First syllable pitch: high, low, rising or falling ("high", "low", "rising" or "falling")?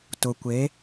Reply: low